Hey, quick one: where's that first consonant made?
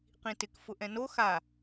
uvula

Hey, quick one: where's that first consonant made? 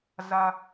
tongue tip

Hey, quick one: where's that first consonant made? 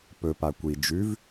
lips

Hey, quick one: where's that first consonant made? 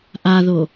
throat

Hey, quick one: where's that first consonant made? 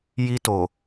palate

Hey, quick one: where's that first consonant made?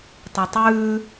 tongue tip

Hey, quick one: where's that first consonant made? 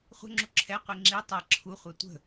uvula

